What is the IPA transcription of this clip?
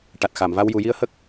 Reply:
ʈ a˨˩ t̚ x a˨˩˨ m v a˧ w j u˨˩˨ j i˧ ə̯ h ə˦˥ k̚

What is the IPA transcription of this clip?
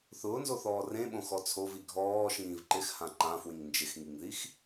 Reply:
θ ʊː n z o θ ɔː r ẽ ɓ õ x ɔ t͡sʰ o v i ɡʱ ɔː ʃ ĩː v ǃ ɪ x h ã ǃ ã f w ĩ ŋ n d͡ʒ ɪ x ŋ i ŋ ð i x

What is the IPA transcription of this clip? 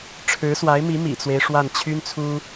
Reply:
ʈ͡ʂʰ ɻ̩˧˥ s w a˧˥ ɪ̯ m i˧˥ m ḭ˨˩ t͡s w e˦ ɪ̯ ʂ w a˥˩ n t͡ɕʰ y˥ n t͡sʰ u˥

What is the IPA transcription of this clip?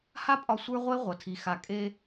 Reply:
h a˦ pʼ ɒ˦ sʷ ə˞˦ ʁʷ e˦ ʁʷ ʌ˨ tʰ i˨ x a˨ kʼ e˦

